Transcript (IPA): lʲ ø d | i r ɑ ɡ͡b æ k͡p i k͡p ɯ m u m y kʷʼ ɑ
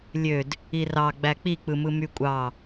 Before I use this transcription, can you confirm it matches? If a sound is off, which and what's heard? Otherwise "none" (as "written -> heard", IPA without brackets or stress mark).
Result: u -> ɯ